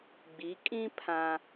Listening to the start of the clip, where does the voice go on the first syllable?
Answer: rising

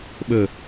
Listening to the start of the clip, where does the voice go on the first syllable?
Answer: low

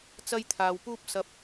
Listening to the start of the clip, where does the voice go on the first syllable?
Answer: high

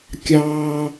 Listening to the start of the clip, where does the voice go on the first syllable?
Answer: high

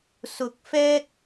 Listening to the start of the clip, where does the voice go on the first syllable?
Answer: rising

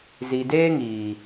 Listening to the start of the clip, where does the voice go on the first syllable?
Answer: low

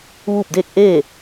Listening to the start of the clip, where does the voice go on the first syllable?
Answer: falling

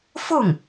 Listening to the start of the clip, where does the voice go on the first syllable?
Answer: falling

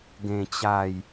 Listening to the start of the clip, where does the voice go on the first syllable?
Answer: low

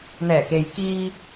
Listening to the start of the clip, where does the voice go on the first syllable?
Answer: low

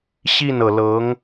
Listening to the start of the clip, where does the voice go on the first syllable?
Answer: falling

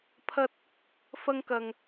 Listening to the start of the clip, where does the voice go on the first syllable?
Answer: high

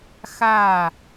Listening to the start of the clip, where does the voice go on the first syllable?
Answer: falling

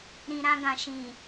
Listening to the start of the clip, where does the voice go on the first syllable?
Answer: low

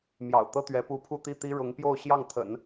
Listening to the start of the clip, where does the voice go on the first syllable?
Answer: low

